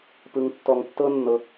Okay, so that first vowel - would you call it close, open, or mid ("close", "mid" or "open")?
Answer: close